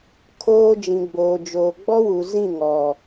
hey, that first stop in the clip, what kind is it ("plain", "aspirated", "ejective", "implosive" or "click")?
aspirated